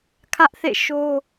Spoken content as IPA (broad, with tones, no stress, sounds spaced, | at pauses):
kʰ ä˦ ʔ θ ḛ˦˨ ʃ o˦